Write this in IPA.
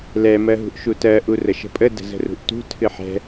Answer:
l ɛ m ɜ ɦ ṳ ʔ ʃ u t ɜ ʔ u r ə ʃ ə̤ pʼ ə d ə̤ z ə̤ r ṳ ʔ t ṳ tʰ ɨ ħ ɛ̤

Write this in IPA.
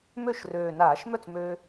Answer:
m ø˥˩ ʃ r øː˨˩ n aː˧˩˧ ʃ m œ˥˩ t͡s m øː˧

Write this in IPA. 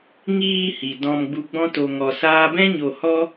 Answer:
ŋ iː˧ h i˨ d ɔ̃˧ m ɡ͡b u˧ ɡ͡b ɔ̃˦ t o˧ ŋ ɔ˧ s aː˦ b ɛ̃˦ ɲ o˧ h ɔ˦

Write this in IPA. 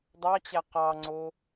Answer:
dˤ ɑ t͡ɕ æ q ɑ ŋ͡ǀ o

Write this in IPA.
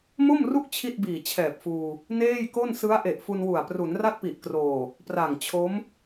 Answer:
m o˥˩ m r u˥˩ k̚ t͡ɕʰ i˥˩ t̚ b iː˨˩ t͡ɕʰ ɛː˨˩ p̚ f uː˧ | n eː˥˩ j k o˥˩ n s ɯ˦˥ a̯ ʔ e˨˩ ʔ f u˧ n w u˨˩ a̯ p r u˩˦ n r a˥˩ t̚ p i˨˩ ʔ k r oː˨˩ | p r a˨˩ ŋ t͡ɕʰ o˦˥ m

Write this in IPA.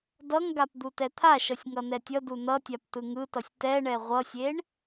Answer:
d ʌ ŋ ɡ a p d̪ u t ɛ t̪ʰ a ʃ ʌ sʲ ŋ ʌ n ɛ tʲ ʌ d u n ʌ tʲ a p t ɯ ŋ ɯ t ʌ sʲ t ɛ ɳ ɛ ʁʷ ʌ sʲ e ɳ

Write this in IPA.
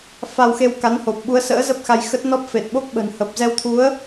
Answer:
f a˧ w x e˧ w k a˨˦ n h o˨˩ p̚ ɓ u˨˦ ə̯ s ə̰ː˧˥ z ə˦˥ p̚ x a˧ j x ə˦˥ t̚ n ɔ˦˥ p̚ f e˨˩ t̚ ɓ o˦˥ k̚ ɓ ə̤˨˩ n h ə˨˩ p̚ z ɛ˧ w t̪ʰ u˨˦ ə̯

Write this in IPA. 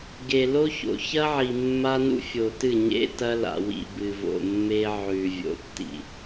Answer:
ɡ e˨ l o˦ ç o̰˨ ç ɐ˦ ʕ i˨ mː a˦ n ṵ˦ fʲ o˨ t ɨ˦˨ ɲ ḛ˦ t ɐ˦ l a̰˨ w ḭ˨ b ɨ˨ v o̰˨ mː e˦ ʕ ʉ˨ vʲ o̰˨˦ tː ḭ˨

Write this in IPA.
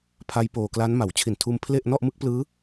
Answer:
pʰ a˦˥ j p oː˧ k l a˦˥ n m a˩˦ w t͡ɕʰ i˨˩ n tʰ uː˧ m pʰ l e˥˩ ʔ n ɔ˥˩ ʔ m ɯ˦˥ k̚ p l ɯː˦˥

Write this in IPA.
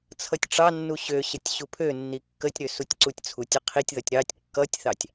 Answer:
t͡sʰ ʌ tʲ ʈ͡ʂ ɑ nː u ɕ ø ɕ ə tʲ ɕ u pʰ ø nː i kː ə tʲ ɾ ø s u tʲ ǀ u tʲ t͡sʰ u tʲ ʌ qʰ i tʲ ð ʌ tʲ ɾ ɑ tʲ kː ʌ tʲ θ ɑ tʲ

